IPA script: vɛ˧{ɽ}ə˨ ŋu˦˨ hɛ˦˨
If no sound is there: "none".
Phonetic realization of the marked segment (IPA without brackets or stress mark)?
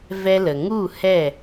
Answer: l